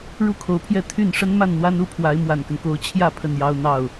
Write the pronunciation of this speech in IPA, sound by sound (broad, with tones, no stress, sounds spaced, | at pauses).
ɻ u˥˩ kʰ o˧˥ ʊ̯ pʰ j ɛ˥˧ t̪ʰ y˥˩ n ʂ ə˥ n m a˥˩ n n̪ w a˥ n u˥ pʰ w a˧˥ ɪ̯ m w a˨˩ n k ə˦ n k o˧˥ ʊ̯ t͡ɕʰ j ä˥˧ pʰ ə˥˩ n j ɑ˥ ʊ̯ n̪ ɑ˥˩ ʊ̯